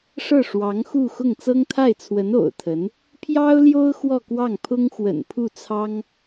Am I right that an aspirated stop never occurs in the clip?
no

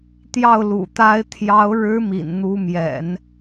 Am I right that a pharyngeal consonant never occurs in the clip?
yes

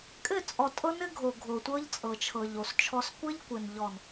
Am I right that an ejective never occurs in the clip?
no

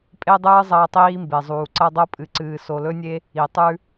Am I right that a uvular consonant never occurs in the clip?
yes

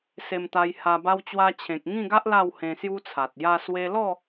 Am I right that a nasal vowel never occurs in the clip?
no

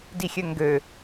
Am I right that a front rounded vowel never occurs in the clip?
no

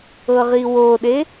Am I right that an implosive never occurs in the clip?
no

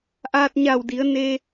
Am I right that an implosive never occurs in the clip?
yes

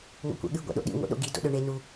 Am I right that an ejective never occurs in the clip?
yes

